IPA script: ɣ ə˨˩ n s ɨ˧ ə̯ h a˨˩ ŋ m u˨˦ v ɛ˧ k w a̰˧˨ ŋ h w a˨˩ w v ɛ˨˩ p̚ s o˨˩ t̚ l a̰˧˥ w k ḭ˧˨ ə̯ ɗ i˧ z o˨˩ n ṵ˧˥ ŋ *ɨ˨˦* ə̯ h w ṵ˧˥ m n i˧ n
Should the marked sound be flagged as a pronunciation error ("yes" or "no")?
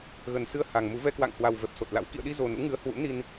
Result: no